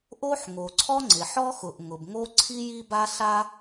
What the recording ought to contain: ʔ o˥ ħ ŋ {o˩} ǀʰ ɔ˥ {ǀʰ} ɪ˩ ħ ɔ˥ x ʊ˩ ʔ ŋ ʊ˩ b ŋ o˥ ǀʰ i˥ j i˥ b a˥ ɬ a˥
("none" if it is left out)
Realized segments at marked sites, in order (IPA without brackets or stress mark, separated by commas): o˩, ŋ͡ǀ